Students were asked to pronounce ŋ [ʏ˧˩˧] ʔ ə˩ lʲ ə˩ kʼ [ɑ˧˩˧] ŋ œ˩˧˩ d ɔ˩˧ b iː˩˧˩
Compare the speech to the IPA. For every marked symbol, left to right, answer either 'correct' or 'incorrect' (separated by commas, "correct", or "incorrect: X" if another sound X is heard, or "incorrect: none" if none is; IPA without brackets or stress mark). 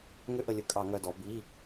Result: correct, correct